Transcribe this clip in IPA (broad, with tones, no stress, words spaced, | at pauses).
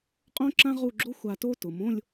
qʼõ˥ǁã˥ ʁu˥˧ ɡ͡ǁo˥xʷ a˧to˥ tʊ˩˧mõ˥˧lʲ